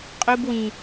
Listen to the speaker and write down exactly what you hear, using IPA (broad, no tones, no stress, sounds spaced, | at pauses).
qʼ u b w ĩ